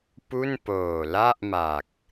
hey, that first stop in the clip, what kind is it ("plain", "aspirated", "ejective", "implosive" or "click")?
plain